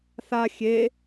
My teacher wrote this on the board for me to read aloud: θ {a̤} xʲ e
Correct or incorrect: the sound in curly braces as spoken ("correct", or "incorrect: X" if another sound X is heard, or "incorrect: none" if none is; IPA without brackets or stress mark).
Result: incorrect: a